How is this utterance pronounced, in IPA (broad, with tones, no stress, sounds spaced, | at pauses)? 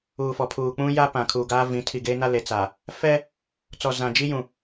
uː˨ f ɔ˨ pʰ uː˨ k͡p ũ˦ j a˦ p ã˨ kʰ u˨ ɡ aː˦ v ĩ˨˦ tʰ i˨ ɡ e˦ n a˦ l e˨ t͡s a˨ | f ɛ˦ | t͡s ɔ˨ z ã˨ d͡ʒ i˦ j ũ˨